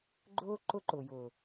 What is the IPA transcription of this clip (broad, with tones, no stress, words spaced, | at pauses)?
ɡ͡ǃʊː˦ ǃʊ˦ǃʊ˨jʊː˨